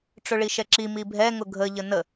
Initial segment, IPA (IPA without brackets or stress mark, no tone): ʈ͡ʂ